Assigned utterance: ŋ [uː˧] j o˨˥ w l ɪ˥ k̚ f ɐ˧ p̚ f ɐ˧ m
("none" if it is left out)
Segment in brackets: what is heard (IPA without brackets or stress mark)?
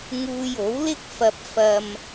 uː˧